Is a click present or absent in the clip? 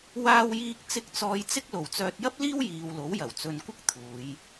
absent